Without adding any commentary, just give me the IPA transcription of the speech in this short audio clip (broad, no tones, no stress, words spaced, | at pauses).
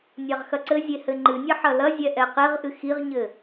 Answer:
nʲaʁxɐǀɘzʲe hɘŋ͡ǃɨnʲɐ ħɐlɐzʲɛ ʔɛqeʁʔɨ xiʁɲɘ